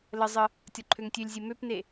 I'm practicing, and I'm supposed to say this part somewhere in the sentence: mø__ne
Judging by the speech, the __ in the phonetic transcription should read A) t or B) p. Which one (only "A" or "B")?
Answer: B